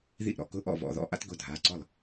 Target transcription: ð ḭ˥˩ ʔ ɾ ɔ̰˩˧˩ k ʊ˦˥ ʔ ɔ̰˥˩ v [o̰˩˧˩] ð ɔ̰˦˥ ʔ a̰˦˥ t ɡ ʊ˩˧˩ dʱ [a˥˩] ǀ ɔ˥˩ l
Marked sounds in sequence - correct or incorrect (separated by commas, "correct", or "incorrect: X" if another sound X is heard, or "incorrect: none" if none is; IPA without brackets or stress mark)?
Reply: incorrect: ɔ̰˩˧˩, incorrect: a˩˧˩